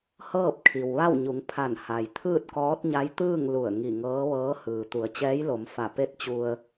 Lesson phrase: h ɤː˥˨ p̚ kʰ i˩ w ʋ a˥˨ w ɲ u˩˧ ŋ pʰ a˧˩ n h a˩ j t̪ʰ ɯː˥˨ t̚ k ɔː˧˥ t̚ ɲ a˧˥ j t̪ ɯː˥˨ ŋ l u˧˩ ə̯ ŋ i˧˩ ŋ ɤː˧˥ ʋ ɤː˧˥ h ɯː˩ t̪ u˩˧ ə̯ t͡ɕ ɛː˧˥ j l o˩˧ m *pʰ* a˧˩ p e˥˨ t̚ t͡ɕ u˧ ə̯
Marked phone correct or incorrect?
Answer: incorrect: f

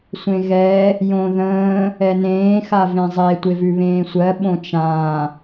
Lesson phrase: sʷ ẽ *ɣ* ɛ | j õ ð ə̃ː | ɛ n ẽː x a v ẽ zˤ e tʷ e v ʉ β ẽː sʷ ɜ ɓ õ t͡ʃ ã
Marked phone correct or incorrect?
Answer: correct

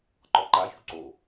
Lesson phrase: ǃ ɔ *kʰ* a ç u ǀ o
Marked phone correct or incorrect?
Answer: incorrect: ǃ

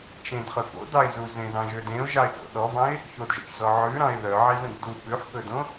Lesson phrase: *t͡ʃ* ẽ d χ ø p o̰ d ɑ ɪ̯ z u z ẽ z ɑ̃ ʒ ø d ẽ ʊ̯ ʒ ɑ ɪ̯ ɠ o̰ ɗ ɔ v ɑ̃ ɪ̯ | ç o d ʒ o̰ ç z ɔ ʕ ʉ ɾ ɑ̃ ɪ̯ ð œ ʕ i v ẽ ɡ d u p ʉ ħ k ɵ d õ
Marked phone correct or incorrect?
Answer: correct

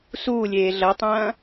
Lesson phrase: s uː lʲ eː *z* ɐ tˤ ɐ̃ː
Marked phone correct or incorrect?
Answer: incorrect: ɮ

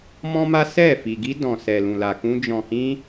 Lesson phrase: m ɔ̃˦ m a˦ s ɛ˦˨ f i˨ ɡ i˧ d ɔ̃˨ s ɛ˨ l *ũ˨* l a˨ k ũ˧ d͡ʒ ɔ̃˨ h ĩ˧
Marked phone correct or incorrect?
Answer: correct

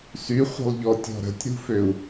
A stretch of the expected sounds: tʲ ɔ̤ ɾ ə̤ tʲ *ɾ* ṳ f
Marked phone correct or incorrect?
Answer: correct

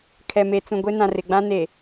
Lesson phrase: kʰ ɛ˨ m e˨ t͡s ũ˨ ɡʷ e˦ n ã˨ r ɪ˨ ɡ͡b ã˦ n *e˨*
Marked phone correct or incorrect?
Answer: correct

